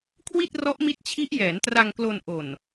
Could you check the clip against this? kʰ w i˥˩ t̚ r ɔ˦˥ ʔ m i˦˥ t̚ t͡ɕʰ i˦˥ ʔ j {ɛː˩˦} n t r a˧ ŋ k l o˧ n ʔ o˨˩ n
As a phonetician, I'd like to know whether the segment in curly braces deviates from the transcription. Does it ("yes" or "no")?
no